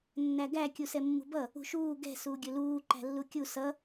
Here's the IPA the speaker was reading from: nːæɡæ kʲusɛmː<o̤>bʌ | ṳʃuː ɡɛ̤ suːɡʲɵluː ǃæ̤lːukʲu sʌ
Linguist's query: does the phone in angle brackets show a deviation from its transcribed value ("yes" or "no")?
yes